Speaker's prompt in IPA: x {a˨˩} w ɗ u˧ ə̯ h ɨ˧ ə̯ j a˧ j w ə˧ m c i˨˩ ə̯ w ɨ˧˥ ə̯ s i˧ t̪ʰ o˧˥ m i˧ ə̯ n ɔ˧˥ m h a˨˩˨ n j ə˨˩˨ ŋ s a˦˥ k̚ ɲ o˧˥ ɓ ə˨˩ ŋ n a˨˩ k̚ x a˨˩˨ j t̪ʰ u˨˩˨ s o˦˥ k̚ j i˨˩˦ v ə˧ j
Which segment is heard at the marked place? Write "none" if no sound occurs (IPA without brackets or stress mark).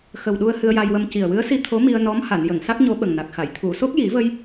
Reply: ə˨˩